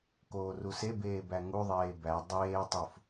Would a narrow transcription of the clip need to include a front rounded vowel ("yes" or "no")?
no